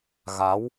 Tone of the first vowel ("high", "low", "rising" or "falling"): rising